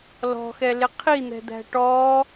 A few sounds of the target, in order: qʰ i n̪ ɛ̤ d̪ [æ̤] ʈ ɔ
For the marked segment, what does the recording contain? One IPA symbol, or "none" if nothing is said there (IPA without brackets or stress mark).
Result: æ̤